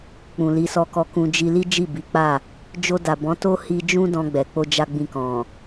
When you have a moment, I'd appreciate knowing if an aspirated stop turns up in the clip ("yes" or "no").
no